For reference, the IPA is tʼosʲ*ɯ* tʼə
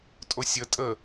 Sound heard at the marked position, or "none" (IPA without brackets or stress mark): ə